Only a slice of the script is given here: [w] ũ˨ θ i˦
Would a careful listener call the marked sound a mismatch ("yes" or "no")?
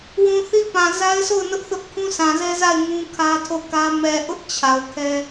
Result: no